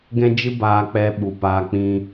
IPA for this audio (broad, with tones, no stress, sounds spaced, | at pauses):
ɡ ɛ̃˦ d͡ʒ ɨ˦ b aː˧ k͡p ɛ˦ ɓ u˧ p aː˦ k͡p ĩ˦